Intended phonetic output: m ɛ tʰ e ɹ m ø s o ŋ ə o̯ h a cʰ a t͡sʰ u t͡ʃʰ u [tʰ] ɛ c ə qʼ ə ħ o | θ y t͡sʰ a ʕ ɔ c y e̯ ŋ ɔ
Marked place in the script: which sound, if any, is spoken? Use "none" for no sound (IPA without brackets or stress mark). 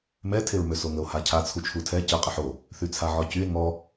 tʰ